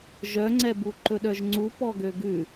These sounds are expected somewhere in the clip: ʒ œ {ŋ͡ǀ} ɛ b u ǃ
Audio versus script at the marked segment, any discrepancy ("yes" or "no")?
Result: no